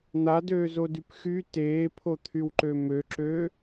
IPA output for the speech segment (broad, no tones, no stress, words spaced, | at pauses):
n̪adøːzodyp xy teːpʰot̪ʰywǃø møǁø